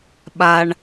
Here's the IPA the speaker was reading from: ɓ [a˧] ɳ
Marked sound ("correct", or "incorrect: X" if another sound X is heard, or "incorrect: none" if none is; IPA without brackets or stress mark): correct